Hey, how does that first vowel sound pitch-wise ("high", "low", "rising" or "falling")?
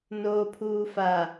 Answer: low